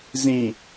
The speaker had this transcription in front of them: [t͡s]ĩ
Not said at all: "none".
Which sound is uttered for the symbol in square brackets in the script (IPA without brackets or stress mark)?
z